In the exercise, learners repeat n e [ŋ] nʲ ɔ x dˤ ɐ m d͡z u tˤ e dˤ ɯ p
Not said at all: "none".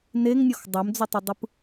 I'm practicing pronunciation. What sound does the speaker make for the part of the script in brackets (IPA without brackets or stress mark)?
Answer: ŋ